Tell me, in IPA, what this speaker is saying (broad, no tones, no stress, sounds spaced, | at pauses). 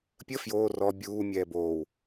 pʲ ə f j oː r ɔ bʲ uː mʲ ɛː b oː w